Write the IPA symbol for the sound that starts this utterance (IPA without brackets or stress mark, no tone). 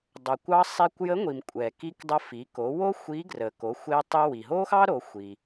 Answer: dˤ